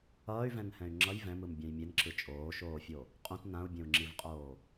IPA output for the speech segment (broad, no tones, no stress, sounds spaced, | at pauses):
ʌː y̯ v ɛ̃ n h ɛ̃ y̯ ŋ͡ǁ ʌ j v ɛ̃ m ɯ m bʲ ã j mʲ e n ǁ ɯ t͡ʃʼ oː ʃ oː fʲ o | qʼ ũ t n ã u̯ bʲ ɛ̃ u̯ ŋ͡ǁ i v qʼ oː